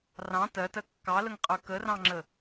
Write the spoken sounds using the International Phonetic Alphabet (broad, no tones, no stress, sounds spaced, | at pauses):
r ɑ̃ t ɜ t ɜ kː ɑ l ə ŋ qʼ ə˞ k ə r ɑ̃ ŋ͡ǁ ə